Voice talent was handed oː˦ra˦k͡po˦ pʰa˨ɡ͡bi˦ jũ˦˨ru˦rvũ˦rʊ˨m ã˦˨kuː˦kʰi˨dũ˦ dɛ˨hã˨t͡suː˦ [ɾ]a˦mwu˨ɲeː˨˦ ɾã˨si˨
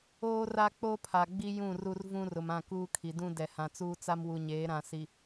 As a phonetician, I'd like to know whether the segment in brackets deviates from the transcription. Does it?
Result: yes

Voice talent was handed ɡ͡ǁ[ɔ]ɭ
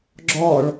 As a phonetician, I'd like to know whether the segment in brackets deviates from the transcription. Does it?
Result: no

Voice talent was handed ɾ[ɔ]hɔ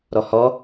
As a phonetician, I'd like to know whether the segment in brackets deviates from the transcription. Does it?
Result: no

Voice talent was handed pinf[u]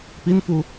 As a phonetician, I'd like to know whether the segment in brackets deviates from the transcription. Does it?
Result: no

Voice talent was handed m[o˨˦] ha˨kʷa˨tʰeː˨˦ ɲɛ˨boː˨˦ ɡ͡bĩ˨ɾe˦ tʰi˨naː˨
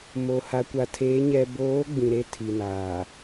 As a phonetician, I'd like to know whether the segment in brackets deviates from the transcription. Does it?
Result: yes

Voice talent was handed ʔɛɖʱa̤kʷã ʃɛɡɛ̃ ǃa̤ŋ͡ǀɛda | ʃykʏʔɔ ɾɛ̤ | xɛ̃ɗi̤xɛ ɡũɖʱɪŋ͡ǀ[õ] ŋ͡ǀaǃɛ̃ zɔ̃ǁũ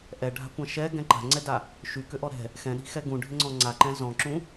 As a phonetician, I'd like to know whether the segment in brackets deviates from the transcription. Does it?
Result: yes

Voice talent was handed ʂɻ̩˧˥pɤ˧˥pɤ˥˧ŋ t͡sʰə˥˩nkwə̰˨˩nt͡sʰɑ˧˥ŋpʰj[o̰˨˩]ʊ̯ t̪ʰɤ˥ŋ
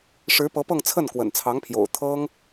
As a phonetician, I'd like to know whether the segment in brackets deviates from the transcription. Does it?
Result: no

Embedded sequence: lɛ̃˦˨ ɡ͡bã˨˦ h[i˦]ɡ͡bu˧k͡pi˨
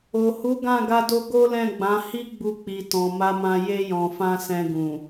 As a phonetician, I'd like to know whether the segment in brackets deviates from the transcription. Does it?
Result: no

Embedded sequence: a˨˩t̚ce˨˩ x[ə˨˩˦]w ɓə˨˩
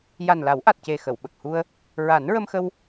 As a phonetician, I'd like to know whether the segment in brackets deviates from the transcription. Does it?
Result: yes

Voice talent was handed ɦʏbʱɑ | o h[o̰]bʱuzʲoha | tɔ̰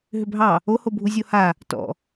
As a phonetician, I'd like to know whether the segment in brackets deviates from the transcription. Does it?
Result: yes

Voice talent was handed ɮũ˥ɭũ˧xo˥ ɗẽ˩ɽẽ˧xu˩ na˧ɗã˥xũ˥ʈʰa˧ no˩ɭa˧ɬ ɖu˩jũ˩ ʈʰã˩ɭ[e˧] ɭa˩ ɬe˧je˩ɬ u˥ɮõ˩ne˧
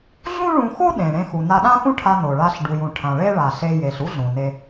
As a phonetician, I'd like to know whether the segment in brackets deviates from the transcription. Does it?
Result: yes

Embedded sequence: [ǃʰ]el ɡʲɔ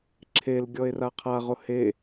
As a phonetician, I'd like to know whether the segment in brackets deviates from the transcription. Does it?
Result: yes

